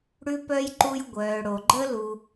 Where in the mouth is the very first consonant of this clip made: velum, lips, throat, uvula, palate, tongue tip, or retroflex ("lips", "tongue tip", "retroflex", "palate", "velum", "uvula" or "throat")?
retroflex